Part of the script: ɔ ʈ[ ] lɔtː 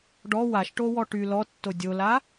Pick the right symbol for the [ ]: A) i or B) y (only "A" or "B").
B